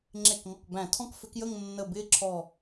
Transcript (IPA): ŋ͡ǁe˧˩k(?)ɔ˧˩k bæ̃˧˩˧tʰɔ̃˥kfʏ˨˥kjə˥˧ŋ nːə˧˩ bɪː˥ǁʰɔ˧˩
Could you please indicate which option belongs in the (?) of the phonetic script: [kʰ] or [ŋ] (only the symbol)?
ŋ